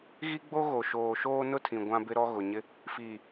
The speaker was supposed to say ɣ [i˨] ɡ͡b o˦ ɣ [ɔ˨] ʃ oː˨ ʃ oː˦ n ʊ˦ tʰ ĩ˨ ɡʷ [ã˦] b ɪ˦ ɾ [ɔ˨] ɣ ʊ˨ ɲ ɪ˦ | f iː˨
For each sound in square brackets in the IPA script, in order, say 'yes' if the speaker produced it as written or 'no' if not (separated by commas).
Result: no, no, yes, no